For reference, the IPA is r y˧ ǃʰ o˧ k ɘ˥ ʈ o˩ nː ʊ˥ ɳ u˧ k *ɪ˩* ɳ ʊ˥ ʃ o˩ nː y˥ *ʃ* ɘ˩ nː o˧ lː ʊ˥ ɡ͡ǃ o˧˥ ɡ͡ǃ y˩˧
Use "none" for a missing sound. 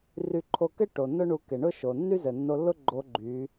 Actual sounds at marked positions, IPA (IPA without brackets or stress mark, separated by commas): ɪ˩, z